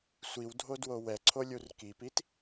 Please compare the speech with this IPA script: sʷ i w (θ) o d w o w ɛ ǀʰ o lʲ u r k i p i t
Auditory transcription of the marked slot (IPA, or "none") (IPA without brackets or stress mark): dʱ